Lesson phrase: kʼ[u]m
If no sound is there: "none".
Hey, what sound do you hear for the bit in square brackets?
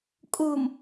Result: u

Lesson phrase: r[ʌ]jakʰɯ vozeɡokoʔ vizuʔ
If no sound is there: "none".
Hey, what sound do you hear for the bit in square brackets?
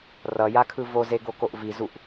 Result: ʌ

